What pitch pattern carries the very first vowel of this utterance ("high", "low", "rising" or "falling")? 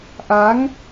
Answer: rising